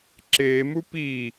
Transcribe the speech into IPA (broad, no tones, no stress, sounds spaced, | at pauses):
ǁ eː m u p i